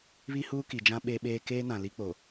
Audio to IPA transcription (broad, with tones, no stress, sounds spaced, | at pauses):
β i˦ h uː˦ k i˨ d͡ʒ ã˦ ɓ e˦ ɓ eː˦ k eː˦ n ã˨ l i˦ k͡p o˨